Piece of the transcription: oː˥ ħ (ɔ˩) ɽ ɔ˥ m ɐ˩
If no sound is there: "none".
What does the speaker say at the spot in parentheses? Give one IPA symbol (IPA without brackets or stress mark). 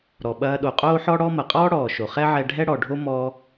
ɔ˥